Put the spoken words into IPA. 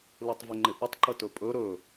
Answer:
l ɯ tˤ v ɪ ŋ͡ǃ ɪ ʔ ə tˤ ǃ ə t ɵ pʼ ɵ ɾ ɵ

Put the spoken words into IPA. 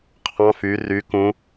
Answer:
qʰ ɑ̃ f y r y k ũ

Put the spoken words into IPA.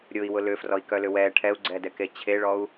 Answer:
ɾʲ ʊ i̯ w ʊ l ʏ f r ɔ i̯ k œ l ʏ w ɛ ʈʰ ɛ u̯ ɡ͡ǀ ɛ d ɛ k e t͡ɕʰ e ɭ ɔ u̯

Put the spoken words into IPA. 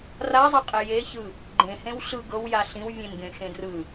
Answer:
r a zˤ a qʼ e j e ç ɯ | ɡ͡ǃ ẽ h ẽ w ɬ ɯ ɡ ɤ w j a ɬ ĩ w vʲ ẽ n ɡ ẽ x ẽ d r ɯ

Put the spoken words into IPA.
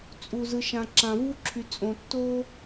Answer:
t͡sʼ u˨ z ɯ˨ ʃ ã˨ ǁ ã˨ v u˦ ǁʰ y˨ t͡sʼ õ˨ tː o˦

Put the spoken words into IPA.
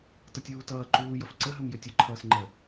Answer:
t ʌ tʲ uː t ʌː ǃ uː j ʌ f ǀ ə ɦ ɵ m j ɵ tʲ ɵ ǃʰ ʌː s ŋ͡ǃ ə

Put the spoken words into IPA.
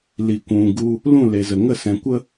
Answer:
l i˨ kʷ ũ˨ ɡ u˧ | l ũ˦˨ l e˨ z ə˨ ŋ ə˦˨ s ɛ̃˨˦ kʷ ə˦

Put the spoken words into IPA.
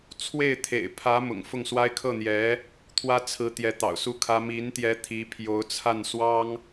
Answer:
t͡sʰ w e˥˩ ɪ̯ t̪ʰ ḛ˨˩ ɪ̯ pʰ ä˧˥ m ʊ̰˨˩ ŋ f ʊ˥˩ ŋ s w a˥ ɪ̯ kʰ ɤ˥˩ n̪ j ɛ˧˥ | t̪ʰ w ä˥ t͡sʰ ɹ̩˧˥ t̪ j ɛ˧˥ t̪ ɑ̰˨˩ ʊ̯ s u˥˩ kʰ ä˥ m i˧˥ n t̪ j ɛ˧˥ t̪ʰ i˧˥ pʰ j o˧˥ ʊ̯ t͡sʰ a˥˩ n s w ɑ˥ ŋ

